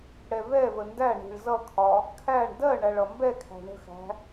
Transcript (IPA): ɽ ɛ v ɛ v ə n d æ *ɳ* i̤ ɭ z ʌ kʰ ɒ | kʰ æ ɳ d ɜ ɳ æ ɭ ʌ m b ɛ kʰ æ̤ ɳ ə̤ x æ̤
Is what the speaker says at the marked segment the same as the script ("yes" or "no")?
yes